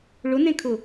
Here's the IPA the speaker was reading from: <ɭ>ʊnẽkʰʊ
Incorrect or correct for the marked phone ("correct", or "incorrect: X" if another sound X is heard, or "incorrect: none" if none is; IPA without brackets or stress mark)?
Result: correct